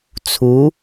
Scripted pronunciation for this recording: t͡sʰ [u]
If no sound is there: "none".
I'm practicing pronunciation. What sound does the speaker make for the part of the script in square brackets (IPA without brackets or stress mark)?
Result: u